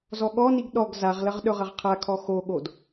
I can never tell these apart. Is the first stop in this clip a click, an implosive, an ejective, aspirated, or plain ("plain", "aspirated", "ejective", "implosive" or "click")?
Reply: implosive